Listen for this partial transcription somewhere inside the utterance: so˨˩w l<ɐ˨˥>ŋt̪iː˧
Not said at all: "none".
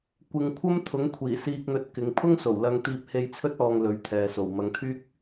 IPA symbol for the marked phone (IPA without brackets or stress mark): ɐ˧